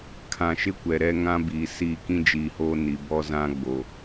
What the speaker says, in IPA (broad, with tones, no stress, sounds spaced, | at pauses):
kʰ ã˨ ʃ ɪ˦ kʷ ɛ˨ ɾ ɛ˦ ŋ ã˦ b iː˨ s iː˦˨ k ĩ˦ d͡ʒ iː˨ h oː˦ n i˨ b ɔ˦ z ã˦ ɡ͡b o˨